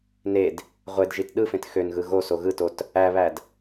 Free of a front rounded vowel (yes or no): no